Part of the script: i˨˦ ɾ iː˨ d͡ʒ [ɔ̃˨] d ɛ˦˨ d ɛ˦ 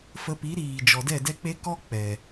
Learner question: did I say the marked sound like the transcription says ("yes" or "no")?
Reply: no